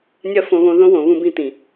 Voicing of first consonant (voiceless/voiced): voiced